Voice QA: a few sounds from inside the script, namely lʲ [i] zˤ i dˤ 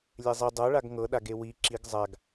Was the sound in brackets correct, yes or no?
no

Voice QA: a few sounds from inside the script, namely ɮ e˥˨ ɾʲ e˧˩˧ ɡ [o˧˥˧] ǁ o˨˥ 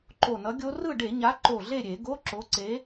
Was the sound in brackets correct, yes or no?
yes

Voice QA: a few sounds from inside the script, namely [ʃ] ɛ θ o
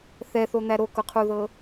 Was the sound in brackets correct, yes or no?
no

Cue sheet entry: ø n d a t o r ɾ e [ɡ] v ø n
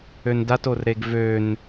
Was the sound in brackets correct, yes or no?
yes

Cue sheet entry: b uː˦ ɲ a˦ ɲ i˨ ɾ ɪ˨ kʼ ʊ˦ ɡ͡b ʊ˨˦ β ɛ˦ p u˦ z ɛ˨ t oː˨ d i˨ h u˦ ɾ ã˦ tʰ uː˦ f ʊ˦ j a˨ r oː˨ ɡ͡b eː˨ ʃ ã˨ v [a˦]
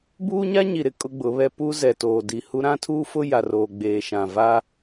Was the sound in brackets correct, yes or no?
no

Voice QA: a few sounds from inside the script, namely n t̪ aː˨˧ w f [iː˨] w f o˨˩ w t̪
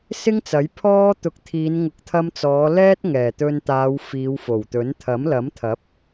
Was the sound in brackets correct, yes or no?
no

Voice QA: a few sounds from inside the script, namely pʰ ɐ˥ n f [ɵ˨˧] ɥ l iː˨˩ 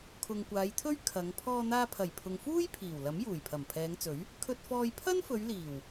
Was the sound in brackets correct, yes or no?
yes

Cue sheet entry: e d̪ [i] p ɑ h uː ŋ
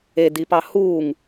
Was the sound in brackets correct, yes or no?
yes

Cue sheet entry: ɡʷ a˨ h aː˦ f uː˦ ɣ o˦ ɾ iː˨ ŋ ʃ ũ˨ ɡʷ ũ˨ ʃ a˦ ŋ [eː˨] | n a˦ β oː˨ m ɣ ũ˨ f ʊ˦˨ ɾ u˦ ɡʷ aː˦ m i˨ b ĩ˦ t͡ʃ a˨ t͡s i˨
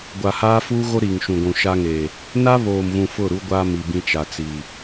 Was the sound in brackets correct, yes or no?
yes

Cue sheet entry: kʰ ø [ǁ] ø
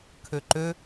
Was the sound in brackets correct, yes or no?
no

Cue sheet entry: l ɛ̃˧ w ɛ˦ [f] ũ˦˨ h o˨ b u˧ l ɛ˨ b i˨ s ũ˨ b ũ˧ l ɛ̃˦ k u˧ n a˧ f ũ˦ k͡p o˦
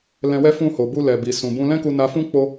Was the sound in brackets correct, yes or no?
yes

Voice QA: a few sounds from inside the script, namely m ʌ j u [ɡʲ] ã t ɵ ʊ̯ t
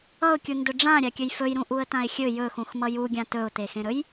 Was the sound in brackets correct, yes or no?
yes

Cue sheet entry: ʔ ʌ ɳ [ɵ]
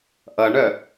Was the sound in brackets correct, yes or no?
no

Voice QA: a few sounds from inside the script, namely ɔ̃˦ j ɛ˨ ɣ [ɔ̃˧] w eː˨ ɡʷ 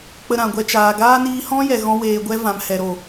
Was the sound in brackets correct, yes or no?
yes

